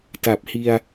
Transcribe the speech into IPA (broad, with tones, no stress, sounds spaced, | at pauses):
t a˨˩ p̚ h i˧ a̯